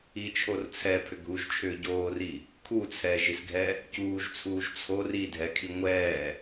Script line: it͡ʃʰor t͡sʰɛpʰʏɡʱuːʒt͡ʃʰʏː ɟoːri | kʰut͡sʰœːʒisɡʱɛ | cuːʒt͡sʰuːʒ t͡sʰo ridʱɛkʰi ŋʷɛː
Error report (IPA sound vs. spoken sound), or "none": œː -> ɛː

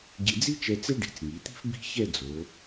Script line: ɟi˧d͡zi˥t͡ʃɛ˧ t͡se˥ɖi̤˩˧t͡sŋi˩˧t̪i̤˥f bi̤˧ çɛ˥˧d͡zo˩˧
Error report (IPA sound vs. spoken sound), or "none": none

